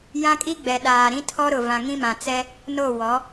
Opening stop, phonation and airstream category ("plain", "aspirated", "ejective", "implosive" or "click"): ejective